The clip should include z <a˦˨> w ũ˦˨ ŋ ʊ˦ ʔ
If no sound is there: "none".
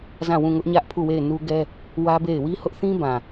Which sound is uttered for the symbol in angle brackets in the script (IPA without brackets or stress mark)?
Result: ã˦˨